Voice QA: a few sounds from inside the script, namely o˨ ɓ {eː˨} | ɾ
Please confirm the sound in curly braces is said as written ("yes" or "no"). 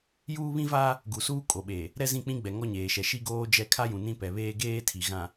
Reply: yes